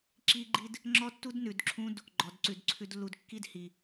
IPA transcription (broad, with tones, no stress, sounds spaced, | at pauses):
ǁ i˦ ɡ͡ǃ i˦ d | ŋ͡ǁ ɔ˦ tː u˦ d n ʉ˨ d ǁʰ ũ˦ d | ɡ͡ǃ ɔ˨ d ǀ ʉ˨ d ǀʰ ʉ˦ d lː u˨ d kː i˦ d h i˨